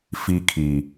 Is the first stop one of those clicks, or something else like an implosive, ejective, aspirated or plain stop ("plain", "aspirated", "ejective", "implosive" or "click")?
aspirated